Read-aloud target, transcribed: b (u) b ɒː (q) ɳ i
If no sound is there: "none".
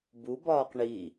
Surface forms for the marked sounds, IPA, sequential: u, q

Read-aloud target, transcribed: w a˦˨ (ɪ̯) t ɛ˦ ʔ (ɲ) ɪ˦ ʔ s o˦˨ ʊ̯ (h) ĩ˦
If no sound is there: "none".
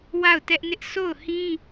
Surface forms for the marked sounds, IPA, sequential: ʊ̯, n, h

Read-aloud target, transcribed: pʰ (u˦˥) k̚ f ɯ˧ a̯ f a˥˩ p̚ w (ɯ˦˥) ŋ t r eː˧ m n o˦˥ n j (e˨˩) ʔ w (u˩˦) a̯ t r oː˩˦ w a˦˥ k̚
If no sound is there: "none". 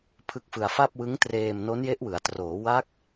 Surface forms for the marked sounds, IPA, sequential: ɯ˦˥, ɯ˦˥, e˦˥, ɯ˩˦

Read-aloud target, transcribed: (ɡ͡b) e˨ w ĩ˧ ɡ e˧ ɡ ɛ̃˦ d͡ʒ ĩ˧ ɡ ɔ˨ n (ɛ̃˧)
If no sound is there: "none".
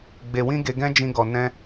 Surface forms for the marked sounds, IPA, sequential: ɡ͡b, ɛ̃˧

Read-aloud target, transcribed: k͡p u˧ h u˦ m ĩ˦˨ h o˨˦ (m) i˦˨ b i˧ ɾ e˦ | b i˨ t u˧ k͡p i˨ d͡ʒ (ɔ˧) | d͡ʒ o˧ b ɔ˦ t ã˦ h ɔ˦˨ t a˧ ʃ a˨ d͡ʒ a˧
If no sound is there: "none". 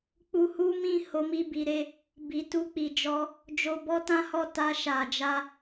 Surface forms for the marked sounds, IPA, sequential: m, ɔ˧

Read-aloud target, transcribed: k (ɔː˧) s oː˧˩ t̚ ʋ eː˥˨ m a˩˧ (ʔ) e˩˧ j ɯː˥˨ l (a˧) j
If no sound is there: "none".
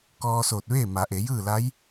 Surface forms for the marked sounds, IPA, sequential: ɔː˧, ʔ, a˧˥

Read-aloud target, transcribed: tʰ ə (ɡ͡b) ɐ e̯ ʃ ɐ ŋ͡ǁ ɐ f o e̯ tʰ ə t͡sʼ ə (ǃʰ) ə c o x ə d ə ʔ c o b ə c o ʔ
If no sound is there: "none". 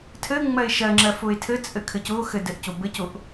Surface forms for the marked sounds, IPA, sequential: ŋ͡m, kʰ

